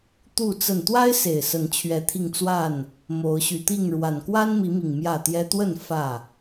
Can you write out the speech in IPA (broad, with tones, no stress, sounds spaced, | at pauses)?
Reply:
t̪ u˥˨ t͡s ə˥˨ n t̪ w a˦ ɪ̯ s e˨˩ ɪ̯ s ə˨˦ n t͡ɕʰ ɥ ɛ˨˦ t̪ʰ i˧ ŋ t͡s w a˥˨ n | m o˨˦ ʊ̯ ɕ y˨˩ t̪ i˥˨ ŋ ɻ w a˨˩ n k w a˦ n m i˨˦ m i˨˩ ŋ m j ä˥˨ t̪ j ɛ˦ t̪ w ə˥˨ n f ä˥˨